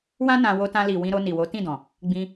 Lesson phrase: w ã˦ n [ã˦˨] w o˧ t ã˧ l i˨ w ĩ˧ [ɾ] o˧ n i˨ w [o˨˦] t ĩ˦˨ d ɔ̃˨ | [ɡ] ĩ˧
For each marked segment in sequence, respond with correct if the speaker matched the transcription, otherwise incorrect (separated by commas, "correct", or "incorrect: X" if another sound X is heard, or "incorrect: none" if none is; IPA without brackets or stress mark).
incorrect: ã˧, correct, correct, incorrect: ɡ͡b